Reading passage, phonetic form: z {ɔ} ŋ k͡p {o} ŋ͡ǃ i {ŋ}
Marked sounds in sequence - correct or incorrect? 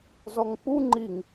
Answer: correct, incorrect: u, correct

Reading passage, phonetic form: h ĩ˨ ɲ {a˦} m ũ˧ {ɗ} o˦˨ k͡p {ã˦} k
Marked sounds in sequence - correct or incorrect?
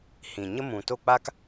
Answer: incorrect: ə˦, incorrect: t, incorrect: a˦

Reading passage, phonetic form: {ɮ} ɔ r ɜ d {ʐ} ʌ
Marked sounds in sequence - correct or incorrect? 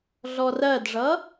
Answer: correct, correct

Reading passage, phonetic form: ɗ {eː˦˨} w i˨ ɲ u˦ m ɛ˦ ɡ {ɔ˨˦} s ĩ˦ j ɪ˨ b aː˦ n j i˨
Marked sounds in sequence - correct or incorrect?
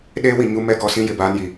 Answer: incorrect: eː˦, correct

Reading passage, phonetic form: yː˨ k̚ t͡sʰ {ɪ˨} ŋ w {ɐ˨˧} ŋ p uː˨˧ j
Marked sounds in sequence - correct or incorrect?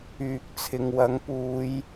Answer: correct, incorrect: ɐ˨˥

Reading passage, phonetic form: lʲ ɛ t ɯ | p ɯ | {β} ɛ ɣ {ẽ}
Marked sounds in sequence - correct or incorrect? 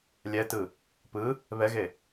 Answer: correct, incorrect: e

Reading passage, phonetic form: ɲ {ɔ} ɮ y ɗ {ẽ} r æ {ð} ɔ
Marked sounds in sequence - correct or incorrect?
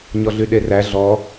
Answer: correct, incorrect: e, incorrect: ɮ

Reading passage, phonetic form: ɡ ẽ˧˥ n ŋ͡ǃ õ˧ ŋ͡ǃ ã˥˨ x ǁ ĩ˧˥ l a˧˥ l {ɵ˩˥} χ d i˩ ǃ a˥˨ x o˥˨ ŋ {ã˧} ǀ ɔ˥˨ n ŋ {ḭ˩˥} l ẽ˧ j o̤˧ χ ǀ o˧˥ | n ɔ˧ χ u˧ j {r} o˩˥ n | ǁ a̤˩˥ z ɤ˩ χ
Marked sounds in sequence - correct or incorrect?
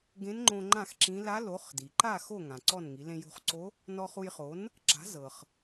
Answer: incorrect: o˩˥, incorrect: ã˩, incorrect: i˩˥, incorrect: χ

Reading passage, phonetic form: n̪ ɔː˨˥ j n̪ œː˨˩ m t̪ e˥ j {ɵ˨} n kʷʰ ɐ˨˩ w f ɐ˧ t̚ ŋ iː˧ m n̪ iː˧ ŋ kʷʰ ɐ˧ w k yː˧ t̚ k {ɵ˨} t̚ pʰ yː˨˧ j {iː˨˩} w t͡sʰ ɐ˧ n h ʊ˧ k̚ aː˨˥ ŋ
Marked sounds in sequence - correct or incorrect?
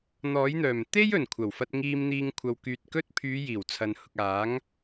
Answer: incorrect: ɵ˨˩, incorrect: ɵ˥, correct

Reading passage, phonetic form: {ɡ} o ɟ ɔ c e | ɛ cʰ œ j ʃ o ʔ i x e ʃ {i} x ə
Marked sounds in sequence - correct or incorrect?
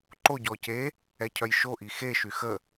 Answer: incorrect: ǃ, incorrect: y

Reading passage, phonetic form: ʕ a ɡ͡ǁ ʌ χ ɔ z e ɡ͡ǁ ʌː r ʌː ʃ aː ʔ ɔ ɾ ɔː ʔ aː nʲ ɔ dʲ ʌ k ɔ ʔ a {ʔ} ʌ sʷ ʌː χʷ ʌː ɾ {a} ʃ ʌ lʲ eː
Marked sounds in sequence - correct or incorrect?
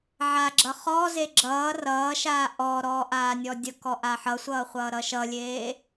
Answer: incorrect: ħ, incorrect: ʌ

